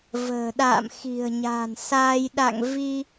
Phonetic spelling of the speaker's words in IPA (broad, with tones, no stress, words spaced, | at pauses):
və̤ː˨˩ɗa̰ː˧˨m xi̤˨˩ə̯ɲa̤˨˩nsaː˧j ɗa̰˧˨ŋ vi˧